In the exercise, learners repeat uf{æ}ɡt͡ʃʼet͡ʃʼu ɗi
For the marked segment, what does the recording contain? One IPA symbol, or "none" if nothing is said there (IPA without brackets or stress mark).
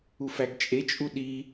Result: æ